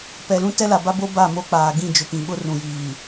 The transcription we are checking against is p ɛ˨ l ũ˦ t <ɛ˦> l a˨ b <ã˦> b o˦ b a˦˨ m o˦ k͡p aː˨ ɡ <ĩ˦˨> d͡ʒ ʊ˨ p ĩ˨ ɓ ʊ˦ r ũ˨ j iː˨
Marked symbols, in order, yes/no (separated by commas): yes, no, yes